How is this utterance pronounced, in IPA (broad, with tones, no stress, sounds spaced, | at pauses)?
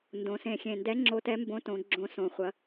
n d õ˩˧ s ẽ˨˩ xʲ ẽ˨˩ n d ɛ˧˥ ŋ͡ǁ o˧˥ t ɛ˧˥ m b õ˧˥ t õ˩˧ ɡ͡ǁ õ˧˥ s õ˩˧ χʷ ɐ˩˧